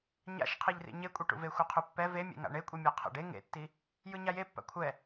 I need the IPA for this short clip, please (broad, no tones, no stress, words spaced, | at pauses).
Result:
ɲa̰ʃqʰeʎrḭ ɲekʷʼiʈṵve xʷɛqʰupːɛ vemʲḛŋa̰ ɳekʷʼimʲa qʰɛ̰ɖe ŋḛtːi | jɯɲajepːa̰ kʷʰɛ